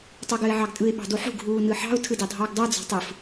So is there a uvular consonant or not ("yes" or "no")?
no